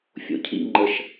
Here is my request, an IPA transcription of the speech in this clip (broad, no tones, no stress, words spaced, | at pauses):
fʲo̰cʰḭ ŋ͡ǃəʃ